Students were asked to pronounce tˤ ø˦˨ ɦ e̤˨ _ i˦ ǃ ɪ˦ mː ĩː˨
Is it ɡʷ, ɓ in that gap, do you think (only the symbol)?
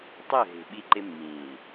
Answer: ɓ